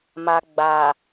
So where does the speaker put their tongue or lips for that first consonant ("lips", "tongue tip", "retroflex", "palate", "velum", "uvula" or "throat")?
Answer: lips